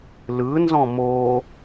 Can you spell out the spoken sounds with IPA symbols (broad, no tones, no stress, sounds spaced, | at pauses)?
l ɯ n z ɔ̃ m o